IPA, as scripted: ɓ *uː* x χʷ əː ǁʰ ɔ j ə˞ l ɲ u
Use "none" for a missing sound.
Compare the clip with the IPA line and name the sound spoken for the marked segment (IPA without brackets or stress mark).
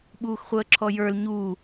uː